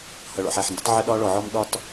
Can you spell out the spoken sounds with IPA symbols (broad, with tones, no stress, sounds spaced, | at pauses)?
h ʌ˨ ɭ ɔ̰˨ ħ æ˨ ħ n d ʊ˦ tˤ ʕ ɪ˦ ɗ ɒː˦ ɭ ɔ˨ ʕ ɔ˦ m ɗ ɒ˦ t